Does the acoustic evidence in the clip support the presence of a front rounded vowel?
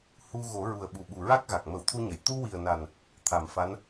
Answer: no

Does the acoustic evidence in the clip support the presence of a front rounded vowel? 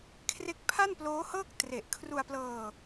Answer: no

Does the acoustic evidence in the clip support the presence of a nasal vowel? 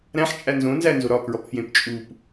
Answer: yes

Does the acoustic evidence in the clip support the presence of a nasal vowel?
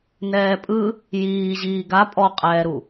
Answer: no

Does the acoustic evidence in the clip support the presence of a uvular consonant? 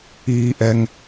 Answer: no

